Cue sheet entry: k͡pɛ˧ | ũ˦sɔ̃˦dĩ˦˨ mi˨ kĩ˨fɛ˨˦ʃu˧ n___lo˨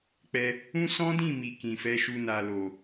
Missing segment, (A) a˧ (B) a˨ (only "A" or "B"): B